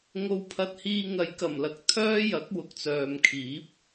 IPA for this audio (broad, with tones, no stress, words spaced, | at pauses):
ŋo˧wpʰɐ˧t̚hiː˧ ŋɐ˨jkɐ˨˩mlɐ˨k̚ t̪ʰœː˥jɐ˨˥k̚ wʊ˨k̚t͡sœː˨mkʰiː˨˥p̚